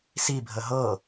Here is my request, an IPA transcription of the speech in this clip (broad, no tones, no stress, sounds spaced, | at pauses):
s i bʱ ə ɦ ɤ